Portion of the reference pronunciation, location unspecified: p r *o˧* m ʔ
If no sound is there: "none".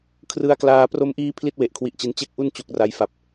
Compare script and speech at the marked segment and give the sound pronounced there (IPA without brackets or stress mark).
o˧